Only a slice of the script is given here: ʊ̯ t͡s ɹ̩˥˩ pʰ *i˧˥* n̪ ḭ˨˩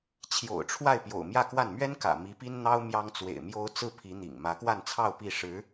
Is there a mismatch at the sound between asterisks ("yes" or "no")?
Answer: no